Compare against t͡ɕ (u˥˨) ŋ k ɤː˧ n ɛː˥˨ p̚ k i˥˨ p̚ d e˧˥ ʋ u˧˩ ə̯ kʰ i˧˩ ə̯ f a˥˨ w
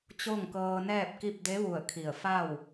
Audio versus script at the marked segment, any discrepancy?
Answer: yes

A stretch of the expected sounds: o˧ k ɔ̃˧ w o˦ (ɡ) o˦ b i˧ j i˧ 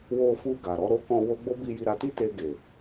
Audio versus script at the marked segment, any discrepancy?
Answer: yes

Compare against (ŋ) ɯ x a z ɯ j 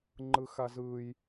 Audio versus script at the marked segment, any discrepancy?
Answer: yes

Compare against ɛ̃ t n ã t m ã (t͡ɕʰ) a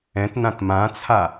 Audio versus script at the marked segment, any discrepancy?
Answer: yes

